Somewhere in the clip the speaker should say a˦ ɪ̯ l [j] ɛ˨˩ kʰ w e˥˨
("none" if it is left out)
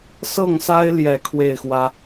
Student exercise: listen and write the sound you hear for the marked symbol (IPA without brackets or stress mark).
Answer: j